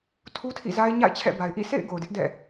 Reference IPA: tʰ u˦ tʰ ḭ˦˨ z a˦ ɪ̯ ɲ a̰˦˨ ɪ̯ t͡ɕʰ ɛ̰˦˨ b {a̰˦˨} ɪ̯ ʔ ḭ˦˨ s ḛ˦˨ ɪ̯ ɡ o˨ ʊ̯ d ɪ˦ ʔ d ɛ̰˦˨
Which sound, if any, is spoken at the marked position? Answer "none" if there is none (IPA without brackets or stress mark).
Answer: a˨